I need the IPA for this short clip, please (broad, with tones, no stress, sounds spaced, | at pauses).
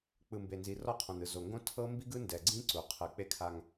k͡p ɯ˨ m b e˨ n z i˨ r ɔ˦˨ qʰ õ˨ n ɯ˨ z o˨ ŋ ɡ õ˦ tʰ ɤ˦ m b i˦ ɡ ɯ˦ n d ɛ˨ ɡ͡ǀ ĩ˦ ǀ u˨ qʰ ɯ˨˦ k͡p e˦ kʰ a˦ ŋ